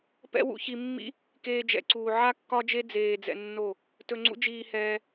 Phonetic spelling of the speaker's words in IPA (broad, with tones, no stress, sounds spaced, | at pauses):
p ɛ̰˦ w ṵ˧ ç i˧ mː ḭ˦ | k eː˦ d͡ʒ ɛ̰˧ ǀ uː˧ ʕ a˦ kː ɒ˦ d͡ʒ e˦ d͡z eː˧ d͡z ɛ̰˧ nː o˦˨ | t ɵ˧ ŋ͡ǀ ṵ˦ d͡ʒ iː˧ h ɛː˧